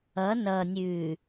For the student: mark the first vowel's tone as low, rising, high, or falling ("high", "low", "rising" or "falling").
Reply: rising